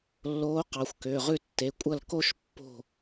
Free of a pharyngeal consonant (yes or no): yes